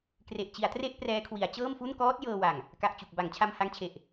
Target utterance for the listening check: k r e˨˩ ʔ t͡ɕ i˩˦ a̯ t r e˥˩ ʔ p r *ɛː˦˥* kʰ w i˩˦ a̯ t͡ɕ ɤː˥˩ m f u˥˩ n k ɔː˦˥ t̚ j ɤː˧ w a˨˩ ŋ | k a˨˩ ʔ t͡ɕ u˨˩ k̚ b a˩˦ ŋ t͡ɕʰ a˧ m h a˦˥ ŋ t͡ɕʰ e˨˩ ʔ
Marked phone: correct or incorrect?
correct